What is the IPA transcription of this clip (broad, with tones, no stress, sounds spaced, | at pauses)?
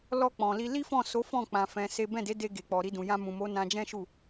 l ɔ˧ k͡p ɔ̃˨ l i˧ l i˦ f ɔ̃˦˨ s o˨˦ f ɔ̃˦˨ k͡p ã˧ f ɛ̃˧ s e˦ b ɛ̃˦˨ d e˨˦ d e˧ ɡ e˨ k͡p ɔ˨ ɾ i˧ d ũ˨ j ã˧ m ũ˨ m o˨˦ n ã˧ d͡ʒ ɛ̃˦ ʃ u˦˨